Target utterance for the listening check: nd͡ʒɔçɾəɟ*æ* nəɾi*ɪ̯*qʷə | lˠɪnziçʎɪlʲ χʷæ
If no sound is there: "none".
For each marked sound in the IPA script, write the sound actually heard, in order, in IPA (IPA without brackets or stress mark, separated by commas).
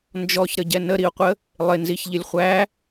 ɛ, ʊ̯